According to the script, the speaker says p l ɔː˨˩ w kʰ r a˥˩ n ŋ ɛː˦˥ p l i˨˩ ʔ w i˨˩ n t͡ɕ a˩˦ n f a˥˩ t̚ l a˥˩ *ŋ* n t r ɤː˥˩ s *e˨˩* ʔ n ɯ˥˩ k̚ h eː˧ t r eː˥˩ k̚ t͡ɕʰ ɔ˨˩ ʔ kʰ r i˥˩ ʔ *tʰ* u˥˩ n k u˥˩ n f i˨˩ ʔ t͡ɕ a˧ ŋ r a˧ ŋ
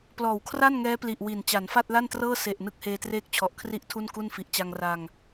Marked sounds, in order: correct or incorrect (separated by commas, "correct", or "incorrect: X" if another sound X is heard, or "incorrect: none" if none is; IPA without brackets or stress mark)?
incorrect: none, correct, correct